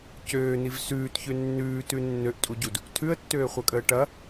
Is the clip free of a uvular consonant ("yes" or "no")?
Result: no